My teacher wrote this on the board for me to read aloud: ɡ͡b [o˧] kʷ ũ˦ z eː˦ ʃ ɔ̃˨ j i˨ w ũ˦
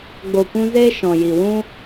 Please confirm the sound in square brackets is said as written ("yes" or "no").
yes